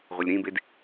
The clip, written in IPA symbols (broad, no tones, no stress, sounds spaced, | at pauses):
ʁʷ ɯ lʲ ɾ ĩ b e d